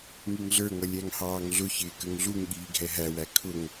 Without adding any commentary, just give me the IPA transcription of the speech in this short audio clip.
ŋ i ŋ ɮ ə˞ ŋ ʌ lʲ æ ŋ h ɑː ŋ ɮ ʊ ç ɪː k ə ŋ ɮ u ŋ ɠ iː ɡʱ ɛ ɦ æ w æ kʰ ʊ ŋ

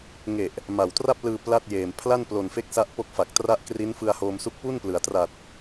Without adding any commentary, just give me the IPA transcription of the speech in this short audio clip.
ŋ e˨˩ ʔ | m a˨˩ w t r a˥˩ p̚ l ɯː˧ p l a˥˩ t̚ j eː˨˩ m pʰ l a˥˩ n p l o˨˩ n f e˦˥ k̚ s a˥˩ ʔ p o˥˩ k̚ f a˨˩ k̚ t r a˦˥ ʔ k r i˦˥ n f ɯ˧ a̯ h oː˧ m s u˦˥ k̚ p u˥˩ n p l ɯ˩˦ a̯ t r a˨˩ t̚

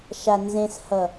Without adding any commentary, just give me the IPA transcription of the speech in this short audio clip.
ʃ a n z ẽ s h ʌ

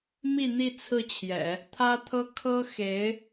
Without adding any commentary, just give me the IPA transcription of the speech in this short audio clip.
m i˥˧ n̪ i˥˧ t͡sʰ ɹ̩˥˩ t͡ɕʰ j ɛ̰˨˩˦ | t̪ʰ ä˥ t̪ʰ ɤ˥ kʰ ɤ˥ x e˧˥ ɪ̯

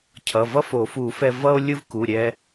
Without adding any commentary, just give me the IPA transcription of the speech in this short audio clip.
cʰ ʌ˩˧˩ v ʌ˥ f o˨˩˦ f u˨˩˦ f ɛ˧ v ʌ˥ o̯ lʲ ɯ˥ v k u˩˧˩ ɾʲ ɛ˧

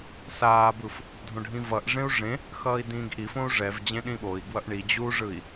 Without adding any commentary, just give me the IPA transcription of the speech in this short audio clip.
s aː b ɯ f | dʱ õ ɖʱ ĩ v ʌ ʔ ʐ ẽ u̯ ʐ ẽ | x ʌː i̯ d ĩː ɡ ʔ i f õ u̯ ʐ ɛ v d͡ʑ ẽ ɗ ĩ ɓ o i̯ ɡ w ʌ ʔ ɳ i d͡ʑ u ʐ ɯ i̯

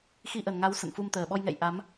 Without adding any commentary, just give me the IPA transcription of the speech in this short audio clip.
x i˧ ʔ ə˨˩ n ŋ a˨˦ w s ə̰˧˨ n f u˧ m t̪ əː˨˩ ɓ ɔ˧ j ŋ ɛ̰˧˨ j ʔ a˨˦ m

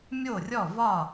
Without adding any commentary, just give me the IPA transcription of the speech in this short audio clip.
mʲ o˥˩ rʲ ɔ˥˩ v ɒ˥˩

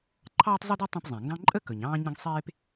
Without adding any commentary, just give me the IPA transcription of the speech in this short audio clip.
ǃʰ ɑː˥ tˤ zˤ u˥ d u˥ tˤ ẽ˥ p zˤ ɛ̃˩ ŋ ɡ ɑ̃˥ ǃʼ ə˥ k ɵ˩ ɲ ɑ̃ː˥ ɲ ə̃˥ ɡ sˤ eː˥ p

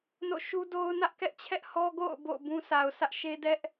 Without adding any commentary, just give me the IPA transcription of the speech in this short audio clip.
n o̰˦˨ ʃ u˦ d o˦ ʊ̯ n ä˦ ʔ k ɛ˦ ʔ t͡ɕʰ ɛ˦ ʔ h ɔ˦ ɡ o̰˦˨ ʊ̯ b o̰˦˨ ʊ̯ b ũ˦ s a˨ ʊ̯ s ä˦ ʔ ʃ e˦ d ɛ˦ ʔ

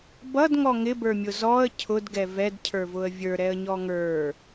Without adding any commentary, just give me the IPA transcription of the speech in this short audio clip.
b ʌ d ŋ ɔ ŋ ɪ b ə˞ mʲ ʊ z ɔ ə̯ cʰ ʊ d ɡ ɛ v ɛ d cʰ ə˞ v ʊ ə̯ vʲ ə˞ ɾ ɛ ə̯ ɲ ɔ ŋ ə˞

